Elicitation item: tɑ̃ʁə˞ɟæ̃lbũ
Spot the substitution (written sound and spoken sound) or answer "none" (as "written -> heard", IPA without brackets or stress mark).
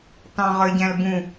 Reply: none